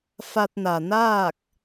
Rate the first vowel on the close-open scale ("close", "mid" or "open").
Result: open